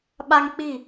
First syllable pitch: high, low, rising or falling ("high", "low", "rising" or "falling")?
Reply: high